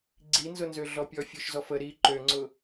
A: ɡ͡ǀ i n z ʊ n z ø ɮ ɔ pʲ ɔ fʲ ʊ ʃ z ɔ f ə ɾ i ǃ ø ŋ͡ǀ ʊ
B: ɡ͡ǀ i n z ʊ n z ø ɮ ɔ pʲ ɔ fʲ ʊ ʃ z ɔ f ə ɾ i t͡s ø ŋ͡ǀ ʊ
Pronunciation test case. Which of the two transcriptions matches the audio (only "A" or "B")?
A